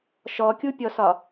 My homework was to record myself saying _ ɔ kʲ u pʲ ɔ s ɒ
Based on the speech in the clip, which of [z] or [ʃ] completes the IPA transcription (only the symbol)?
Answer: ʃ